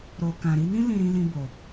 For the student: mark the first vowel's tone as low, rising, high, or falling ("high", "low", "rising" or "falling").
low